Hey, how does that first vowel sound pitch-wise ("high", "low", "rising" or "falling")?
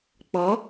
rising